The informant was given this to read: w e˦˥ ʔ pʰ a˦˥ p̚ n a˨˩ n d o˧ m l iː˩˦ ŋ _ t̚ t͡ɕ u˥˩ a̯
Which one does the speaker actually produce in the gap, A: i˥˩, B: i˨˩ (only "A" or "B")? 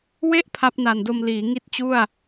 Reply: A